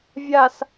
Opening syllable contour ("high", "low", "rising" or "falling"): low